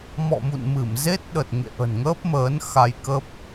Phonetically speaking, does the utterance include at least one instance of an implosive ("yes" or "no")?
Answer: yes